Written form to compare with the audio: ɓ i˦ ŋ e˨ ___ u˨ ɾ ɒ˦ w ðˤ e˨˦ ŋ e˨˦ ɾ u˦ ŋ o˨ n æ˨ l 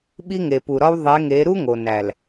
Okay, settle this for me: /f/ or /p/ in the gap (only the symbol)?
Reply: p